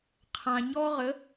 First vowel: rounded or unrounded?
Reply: unrounded